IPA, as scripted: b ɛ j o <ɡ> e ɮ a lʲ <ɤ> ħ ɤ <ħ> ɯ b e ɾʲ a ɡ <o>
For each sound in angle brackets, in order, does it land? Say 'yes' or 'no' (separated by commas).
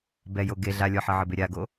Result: yes, no, no, yes